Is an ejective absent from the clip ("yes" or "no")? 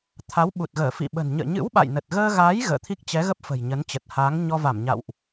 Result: yes